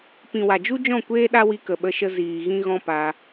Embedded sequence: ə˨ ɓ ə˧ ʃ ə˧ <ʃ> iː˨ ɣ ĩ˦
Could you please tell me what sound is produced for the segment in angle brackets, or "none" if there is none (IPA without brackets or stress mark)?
z